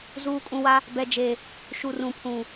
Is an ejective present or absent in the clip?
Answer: present